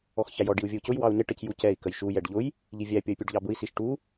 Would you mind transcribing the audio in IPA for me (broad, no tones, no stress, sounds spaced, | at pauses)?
ɔ x ç æ j ɔ ɖ i u̯ vʲ ə u̯ c ʊ j w ɑ u̯ n ɪ ʈ ə c j u c ɛ i̯ k ə j ʃ u j ɛ ɖ ʎ ʊ j | ʎ i vʲ æ pʲ ʌ y̯ pʲ u ɖ ʎ ɑ b ʊ i̯ s i ʃ ʈ u